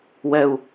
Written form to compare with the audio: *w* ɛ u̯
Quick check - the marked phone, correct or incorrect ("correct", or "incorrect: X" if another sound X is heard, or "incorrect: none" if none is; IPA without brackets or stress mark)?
correct